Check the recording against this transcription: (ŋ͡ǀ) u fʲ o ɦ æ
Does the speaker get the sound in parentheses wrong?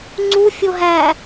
no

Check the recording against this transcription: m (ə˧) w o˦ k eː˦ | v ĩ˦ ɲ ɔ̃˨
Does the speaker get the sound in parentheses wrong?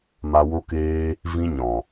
yes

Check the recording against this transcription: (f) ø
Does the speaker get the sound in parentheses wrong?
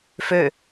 no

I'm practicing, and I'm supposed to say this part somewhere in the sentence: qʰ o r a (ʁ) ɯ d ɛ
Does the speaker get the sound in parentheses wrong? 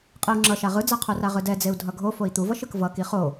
no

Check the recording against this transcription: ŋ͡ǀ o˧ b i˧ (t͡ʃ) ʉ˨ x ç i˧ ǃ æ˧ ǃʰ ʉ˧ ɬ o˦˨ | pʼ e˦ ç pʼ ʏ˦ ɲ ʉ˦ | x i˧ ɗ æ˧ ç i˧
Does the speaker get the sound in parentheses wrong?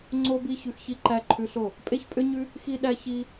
yes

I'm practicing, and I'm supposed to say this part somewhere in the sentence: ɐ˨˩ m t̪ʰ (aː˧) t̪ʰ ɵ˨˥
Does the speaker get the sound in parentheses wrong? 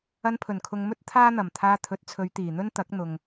no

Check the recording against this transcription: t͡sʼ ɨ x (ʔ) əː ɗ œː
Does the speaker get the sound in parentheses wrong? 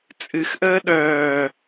no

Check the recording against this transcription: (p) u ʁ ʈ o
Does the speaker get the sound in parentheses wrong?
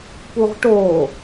no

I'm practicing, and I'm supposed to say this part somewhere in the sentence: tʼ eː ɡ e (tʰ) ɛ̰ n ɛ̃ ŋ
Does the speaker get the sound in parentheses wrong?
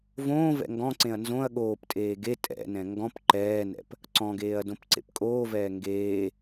yes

